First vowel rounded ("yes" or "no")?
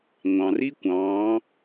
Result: no